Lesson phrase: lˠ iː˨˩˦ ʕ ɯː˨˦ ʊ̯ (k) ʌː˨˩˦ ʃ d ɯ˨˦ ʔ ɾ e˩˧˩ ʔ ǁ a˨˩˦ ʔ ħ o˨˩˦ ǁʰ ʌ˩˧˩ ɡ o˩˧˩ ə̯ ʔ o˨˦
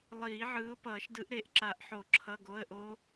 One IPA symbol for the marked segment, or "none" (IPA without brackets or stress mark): p